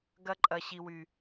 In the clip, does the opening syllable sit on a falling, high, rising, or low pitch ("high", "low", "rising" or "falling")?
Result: high